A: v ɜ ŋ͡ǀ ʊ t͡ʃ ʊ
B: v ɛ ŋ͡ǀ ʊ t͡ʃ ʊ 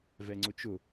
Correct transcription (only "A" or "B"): B